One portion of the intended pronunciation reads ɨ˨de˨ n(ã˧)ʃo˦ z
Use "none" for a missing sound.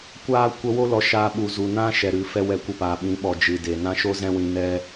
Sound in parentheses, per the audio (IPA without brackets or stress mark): ã˦